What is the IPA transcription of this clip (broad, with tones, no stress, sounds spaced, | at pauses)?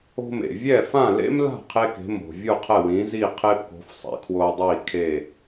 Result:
o̤˧ m ḛ˩ vʲ ɛ˥˩ f ã˥˩ l ḛ˥ m l a̤˥˩ qʰ e˥ k e̤˩˥ m o̤˩ vʲ u˥˩ qʰ ɛ˥˩ w ĩː˩˥ z i˥˩ qʰ eː˥ p k o̤˩˥ f sˤ ɛ̰˧ kʰ w oː˧ dˤ iː˥˩ kʰ e˥˩